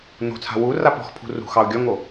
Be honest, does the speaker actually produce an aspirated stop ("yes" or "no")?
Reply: yes